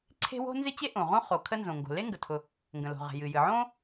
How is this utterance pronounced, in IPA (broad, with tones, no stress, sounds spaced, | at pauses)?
ǀʰ e̤˥ w o̤˥ n z ɪ˥ t͡ɕ e˥ ʔ õ˩ ʁ õ˥ χ o˩ kʰ ə˥ n z õ˩ ŋ ɡ o̤˩ l e˥ ŋ ɡ ə˩ tʰ ʊ˩ | ŋ ɡ ə̃˩ l o̤˩ ʁ e̤˩ j ɨ˩ j ɨ˩ ʕ õ˥